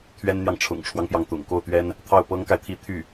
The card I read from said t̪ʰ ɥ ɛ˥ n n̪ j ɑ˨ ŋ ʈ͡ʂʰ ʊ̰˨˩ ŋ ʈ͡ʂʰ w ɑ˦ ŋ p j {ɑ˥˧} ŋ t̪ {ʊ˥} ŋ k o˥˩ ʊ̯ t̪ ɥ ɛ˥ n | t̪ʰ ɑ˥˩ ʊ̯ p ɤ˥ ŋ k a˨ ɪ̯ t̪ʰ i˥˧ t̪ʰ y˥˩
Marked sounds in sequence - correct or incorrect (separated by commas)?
incorrect, incorrect